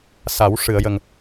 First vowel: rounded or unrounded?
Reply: unrounded